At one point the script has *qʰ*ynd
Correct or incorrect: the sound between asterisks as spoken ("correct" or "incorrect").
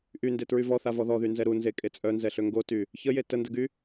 incorrect